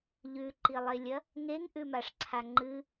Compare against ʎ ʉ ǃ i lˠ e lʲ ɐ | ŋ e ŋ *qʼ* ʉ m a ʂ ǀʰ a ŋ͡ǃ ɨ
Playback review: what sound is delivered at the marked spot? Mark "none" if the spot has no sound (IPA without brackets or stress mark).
ʔ